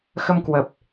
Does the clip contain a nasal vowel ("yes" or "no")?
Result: no